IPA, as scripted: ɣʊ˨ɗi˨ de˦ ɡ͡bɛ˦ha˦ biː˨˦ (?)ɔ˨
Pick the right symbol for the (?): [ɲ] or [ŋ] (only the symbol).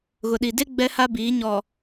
ɲ